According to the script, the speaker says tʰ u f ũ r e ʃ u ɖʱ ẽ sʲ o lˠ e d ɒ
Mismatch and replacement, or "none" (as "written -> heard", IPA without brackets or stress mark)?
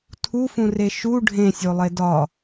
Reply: none